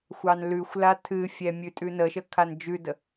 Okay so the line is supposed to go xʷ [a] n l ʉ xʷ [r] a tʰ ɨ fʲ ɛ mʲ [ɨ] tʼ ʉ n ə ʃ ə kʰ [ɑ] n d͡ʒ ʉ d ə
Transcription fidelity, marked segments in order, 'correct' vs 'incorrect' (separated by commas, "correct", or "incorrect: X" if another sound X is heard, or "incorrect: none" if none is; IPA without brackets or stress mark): incorrect: ɑ, incorrect: l, incorrect: ʉ, incorrect: a